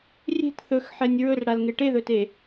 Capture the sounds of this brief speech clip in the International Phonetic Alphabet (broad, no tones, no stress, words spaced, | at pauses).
rʲe̤t θɵxħɛnʲ ɹɵrɽalŋe ʈeðɵte